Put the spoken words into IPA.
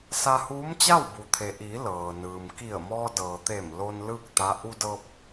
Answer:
sa˧huː˧˥mt͡ɕa˥˨w bu˩t̪ʰe˩ʔiː˩˧ lɤː˩nɯː˩m ki˧˩ə̯mɔː˧dɤː˩t̪e˧˩m lo˧n lɯː˥˨k̚t̪a˧˥ ʔu˧dɤː˧p̚

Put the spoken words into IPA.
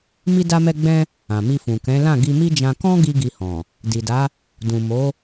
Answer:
mi˧da˧mɛ˧ɡ͡bɛ̃˧ | ã˨mi˧fũ˨ kɛ̃˨˦lã˦˨ ɡi˧mi˦d͡ʒã˧ kɔ̃˦ ɡi˦ɡi˧hɔ̃˨ | di˨da˨˦ | dũ˨ mo˨˦

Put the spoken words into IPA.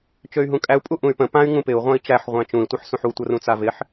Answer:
t͡ʃøy̯ɦũkʼæu̯ pʼuʔũy̯pə̃ pãy̯ ŋũpɪu̯ ʁʷãi̯t͡ʃæħ ʁʷæ̃t͡ʃũi̯ tʷɤħsũħu tʷərũt͡savɪħ

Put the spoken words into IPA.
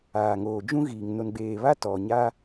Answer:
aː˨ŋoː˨d͡ʒũ˦ɣiː˨ŋ no˨nɡ͡beː˨βa˦ tɔ˨ɲa˦

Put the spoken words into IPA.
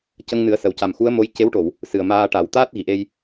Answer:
cə˧ŋnɨ˨˩˦ə̯sə˨˩wca˨˩m xu˧˥ə̯mo˧˥j ce˧˥wʈo˨˩˨w | sɨ˨˩ə̯maː˧ ʈa˨˩˦w t̪aː˦˥t̚ɣi˨˩˨ʔe˧j

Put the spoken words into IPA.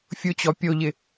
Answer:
fʲʊt͡ɕɔ pʲoʎɪ

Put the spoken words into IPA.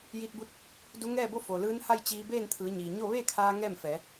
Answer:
jiː˧t̚bu˧˥t̚ | du˧˥ŋɛː˥˨bo˥˨ fo˩lɯː˧˥nha˥˨j t͡ɕiː˧beː˥˨nt̪ʰɯː˩˧ ɲiː˩ ɲo˥˨ ʋeː˥˨kʰaː˧ ŋɛː˥˨mfɛː˩˧

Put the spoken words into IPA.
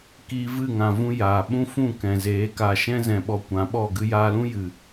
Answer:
kiː˧vɨ˦˨ŋã˨vũ˧ jaː˨ ɓũ˦fũ˦˨kɛ̃˨zeː˨˦ ka˨ʃɛ̃˧zɛ̃˨ ɓɔ˧kʷã˨˦ɓɔ˦˨ ɡɨ˧jaː˧lũ˦jɨ˨

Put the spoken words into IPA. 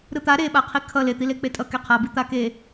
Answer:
ɾɯt̪a ɾeɓaqʰi kʰʌ let̪ile k͡petʼʌ keqʰabi t̪ake

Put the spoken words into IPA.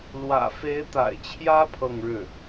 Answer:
lwä̰˨˩fe˧˥ɪ̯t̪a̰˨˩ɪ̯t͡ɕʰjä˥ pʰɤ˥˧ŋɻɻ̩˥˩

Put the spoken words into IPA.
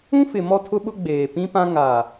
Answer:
ũ˦fɪ˨ mɔ˦tʰʊ˦ɓʊ˦ ɡ͡beː˨pĩ˦pã˦ ŋa˨

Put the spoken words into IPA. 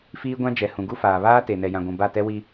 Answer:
fiː˦ɡʷã˦d͡ʒɛ˨ hũ˨ɡu˦faː˨ βaː˦ te˨ nɛ˨jã˨ɡʷũ˨ ba˦˨tɛ˦wi˦

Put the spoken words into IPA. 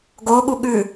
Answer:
ɡoɠu ɠʉ

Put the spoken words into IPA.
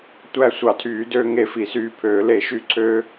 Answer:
tʷæ˧ sʷɑ˨˩˦tʰyː˨˩˦døː˧ ŋe˧fi˨˩˦syː˧pʰøː˨˩˦ le˨˩˦ʃy˧ǀʰø˧

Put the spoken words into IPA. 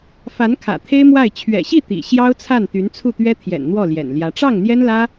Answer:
fa˧˥nkʰä̰˨˩ t̪ʰe˥ɪ̯mwa˥˩ɪ̯ t͡ɕʰɥɛ̰˨˩ɕi˥˩ t̪ḭ˨˩ ɕjɑ˥ʊ̯t͡sʰa˥˩n t̪y˧˥nt͡sʰu˥˩t̪ɥɛ˥ t̪ʰjɛ̰˨˩nn̪wɔ˥˩ ljɛ̰˨˩nljä˧˥ ʈ͡ʂɑ˥˩ŋn̪jɛ˥nlä˥

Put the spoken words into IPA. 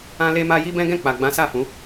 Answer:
ã˦le˦ma˦ ji˦bɛ̃˦ɡɛ̃˦˨ k͡pa˨ɡ͡bã˨˦ sa˦˨fũ˨˦

